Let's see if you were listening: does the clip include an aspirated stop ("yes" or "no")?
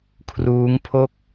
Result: yes